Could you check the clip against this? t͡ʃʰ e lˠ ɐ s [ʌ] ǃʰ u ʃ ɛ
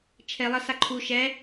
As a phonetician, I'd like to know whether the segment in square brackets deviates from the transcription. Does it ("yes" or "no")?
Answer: yes